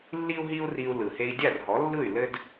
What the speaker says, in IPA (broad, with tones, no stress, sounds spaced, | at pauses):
lː i˥ u̯ ɦ i˥ u̯ r i˧ u̯ l ɯ˩ h e˧ i̯ dʲ a˥˩ r ɦ ɔ˩˥ lː ɯ˥˩ y̯ l ɘ˥ d